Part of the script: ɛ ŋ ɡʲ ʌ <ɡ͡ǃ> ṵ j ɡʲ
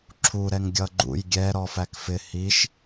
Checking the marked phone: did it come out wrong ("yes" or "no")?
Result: no